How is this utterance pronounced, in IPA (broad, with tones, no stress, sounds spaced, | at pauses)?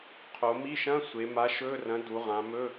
qʰ o˩˧ m i˧˥˧ ʃ ɐ̃˧˥˧ sʷ e˩˧ m a˨˥ ʃ ɵ˧˥˧ r ɐ̃˨˥ d u˩˧ ʁ ã˩˧ m ɵ˧˥˧